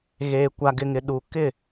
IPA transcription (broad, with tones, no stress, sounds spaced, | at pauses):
ɣ eː˨ kʷ a˨ ɡ ɪ˨ ŋ ɪ˨ ɗ u˨ k ɪ˦˨